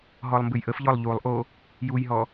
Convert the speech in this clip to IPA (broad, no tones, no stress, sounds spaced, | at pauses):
ɦ ɔ lˠ m b ɨ j ʔ ə f ʎ ɔ lˠ ʎ u lˠ ʔ o | j u j ɦ ɔ